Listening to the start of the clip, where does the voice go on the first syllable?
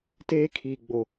high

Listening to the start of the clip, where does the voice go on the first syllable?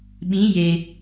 rising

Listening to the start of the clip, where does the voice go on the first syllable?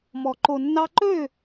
low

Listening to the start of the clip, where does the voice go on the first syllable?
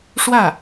falling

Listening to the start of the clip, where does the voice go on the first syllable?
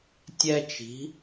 high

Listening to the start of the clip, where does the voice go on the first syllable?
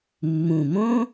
low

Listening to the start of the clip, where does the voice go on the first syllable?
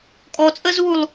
low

